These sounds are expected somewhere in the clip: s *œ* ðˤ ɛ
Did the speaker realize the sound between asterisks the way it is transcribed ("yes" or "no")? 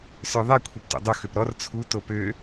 yes